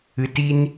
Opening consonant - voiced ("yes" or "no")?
no